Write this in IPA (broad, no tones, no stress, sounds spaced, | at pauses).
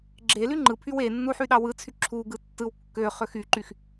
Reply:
ɡ͡ǁ e l y ŋ͡ǃ ɯ pʰ y w e nː u ħ y ɗ ɑ w ɯ t͡sʰ y ǁʰ u ɡ ɯ tː ɯ w kː ø χ ø x y ǃ y x